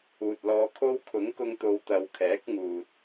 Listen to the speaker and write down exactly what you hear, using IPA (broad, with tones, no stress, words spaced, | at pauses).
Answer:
uː˨t̚lɔː˧kʰo˥w kʰʊ˨˥ŋkʊ˧ŋt̪o˨˧w t̪ɐ˨wkʰɛː˨˥k̚ŋuː˨t̚